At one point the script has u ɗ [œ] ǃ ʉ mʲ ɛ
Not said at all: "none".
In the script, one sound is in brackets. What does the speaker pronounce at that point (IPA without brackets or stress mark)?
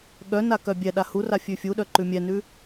œ